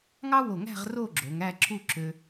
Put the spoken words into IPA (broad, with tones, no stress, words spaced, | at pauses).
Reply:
ŋɑ˥wo˧˩ŋæ̤˥˧ʁ ro˥˧ɡ͡ǁo˩˧ŋ æ˥˧ǁu˥˧ ǁø˧